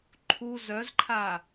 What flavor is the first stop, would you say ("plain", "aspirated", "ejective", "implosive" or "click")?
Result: click